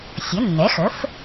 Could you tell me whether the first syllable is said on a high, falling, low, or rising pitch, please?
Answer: rising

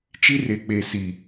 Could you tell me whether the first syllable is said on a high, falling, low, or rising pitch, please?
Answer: high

